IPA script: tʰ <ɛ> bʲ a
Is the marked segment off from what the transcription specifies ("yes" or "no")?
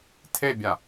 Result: yes